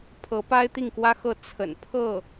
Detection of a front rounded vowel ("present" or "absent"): absent